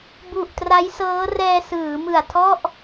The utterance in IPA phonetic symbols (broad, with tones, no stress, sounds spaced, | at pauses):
b u˨˩ ʔ t r a˦˥ j s ɤː˦˥ r ɛː˧ s ɯː˩˦ m ɯ˨˩ a̯ tʰ ɔ˥˩ ʔ